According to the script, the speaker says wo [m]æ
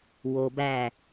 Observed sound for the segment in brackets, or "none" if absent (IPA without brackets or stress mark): b